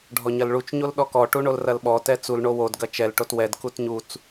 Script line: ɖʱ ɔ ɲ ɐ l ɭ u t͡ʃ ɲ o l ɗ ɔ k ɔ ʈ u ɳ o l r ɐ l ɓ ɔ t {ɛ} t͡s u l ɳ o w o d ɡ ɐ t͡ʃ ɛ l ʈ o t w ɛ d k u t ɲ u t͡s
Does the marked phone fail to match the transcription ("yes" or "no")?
no